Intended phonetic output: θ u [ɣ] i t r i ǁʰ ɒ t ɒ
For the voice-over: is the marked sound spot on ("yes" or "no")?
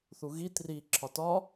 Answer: yes